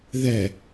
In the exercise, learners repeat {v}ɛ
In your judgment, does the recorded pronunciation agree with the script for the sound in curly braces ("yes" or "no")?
no